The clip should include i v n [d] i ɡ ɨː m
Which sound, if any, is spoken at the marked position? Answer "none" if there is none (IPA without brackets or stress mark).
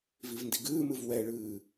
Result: d